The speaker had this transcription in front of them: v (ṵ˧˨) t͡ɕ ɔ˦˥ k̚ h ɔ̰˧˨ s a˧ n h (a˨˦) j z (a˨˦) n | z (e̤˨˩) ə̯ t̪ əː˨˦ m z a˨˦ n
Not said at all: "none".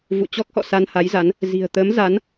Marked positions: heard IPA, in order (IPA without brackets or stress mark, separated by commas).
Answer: ṵ˧˨, a˨˦, a˨˦, i̤˨˩